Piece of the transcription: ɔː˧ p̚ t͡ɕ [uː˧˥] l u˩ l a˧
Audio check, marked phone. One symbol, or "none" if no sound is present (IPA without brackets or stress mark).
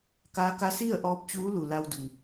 uː˧˥